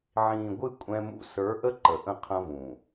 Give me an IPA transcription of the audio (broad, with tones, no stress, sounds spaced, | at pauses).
ʕ ĩː˨ ɡʷ ɨ˦˨ kʷʼ ɛ̃˦ m ṵ˦ s ə˞˨˦ ʔ ə˦ ǃ ə˨ ʔ ə̃˦˨ qʰ ɐ̃˦ v ũː˨